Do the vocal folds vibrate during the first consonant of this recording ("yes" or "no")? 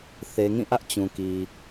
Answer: no